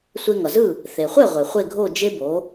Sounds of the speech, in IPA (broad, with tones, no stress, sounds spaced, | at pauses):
sʷ e˧ ŋ ʌ˩ z ɯ˥˩ | θ e˩ χʷ ɛ˥˩ ʁʷ e˩ χʷ e˥˩ ɡʱ o˥˩ d͡ʒ e˥ b o˩˥